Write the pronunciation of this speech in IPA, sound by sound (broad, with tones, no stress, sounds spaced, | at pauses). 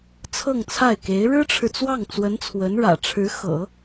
t͡sʰ ɤ˥˧ ŋ t͡sʰ a˥˩ ɪ̯ k e˧˥ ɪ̯ ɻ ɻ̩˥ ʈ͡ʂʰ ɻ̩˨ t͡s w ɑ˥˩ ŋ t͡s w ə˧˥ n t͡sʰ w ə˧˥ n ɻ ä̰˨˩ ʈ͡ʂʰ ɻ̩˧˥ x ɤ̰˨˩˦